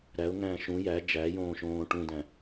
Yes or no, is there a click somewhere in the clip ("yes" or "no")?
no